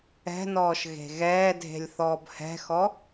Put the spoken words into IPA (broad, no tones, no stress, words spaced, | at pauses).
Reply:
ɛ̤nɔːʃ ɣe̤ɣɛːdʱe̤lʲ θɔːbhɛ̤xɔ